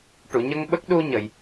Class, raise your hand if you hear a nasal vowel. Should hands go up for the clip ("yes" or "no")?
no